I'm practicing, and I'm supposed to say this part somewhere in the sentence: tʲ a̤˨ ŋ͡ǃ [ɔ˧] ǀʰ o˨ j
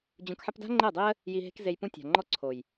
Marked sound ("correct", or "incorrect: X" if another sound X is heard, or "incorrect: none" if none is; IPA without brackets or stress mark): correct